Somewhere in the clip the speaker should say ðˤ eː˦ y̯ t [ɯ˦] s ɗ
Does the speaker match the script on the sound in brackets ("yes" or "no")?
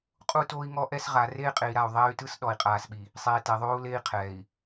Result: yes